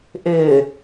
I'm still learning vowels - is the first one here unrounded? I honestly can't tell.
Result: yes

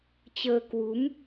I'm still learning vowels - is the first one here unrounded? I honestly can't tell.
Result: yes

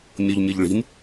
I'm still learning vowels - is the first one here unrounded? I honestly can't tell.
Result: no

